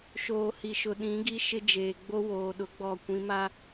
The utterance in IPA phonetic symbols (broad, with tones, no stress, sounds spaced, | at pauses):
ʃ oː˨ h i˨ ʃ ʊ˨ ɗ ĩ˨˦ ɡ i˦ ʃ ɪ˦ d͡ʒ eː˨ ɡ͡b o˦ w oː˨ ɗ ʊ˨˦ ɡ͡b ɔ˨ kʷ ĩ˨˦ m a˦